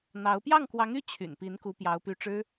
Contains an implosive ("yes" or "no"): no